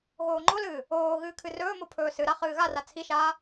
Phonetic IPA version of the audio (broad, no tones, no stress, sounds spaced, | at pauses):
ɣ oː ŋ͡ǃ o l ɨː | oː ɣ ɨː kʰ ɨ r ɵː m o pʰ ɵː s ɨ ɾ a χ ɨː ɣ a r a t͡sʰ i ʃ aː